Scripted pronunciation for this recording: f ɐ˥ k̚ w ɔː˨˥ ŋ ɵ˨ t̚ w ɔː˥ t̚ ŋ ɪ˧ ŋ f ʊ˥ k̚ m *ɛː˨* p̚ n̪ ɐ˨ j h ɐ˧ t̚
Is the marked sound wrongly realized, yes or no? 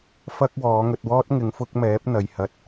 yes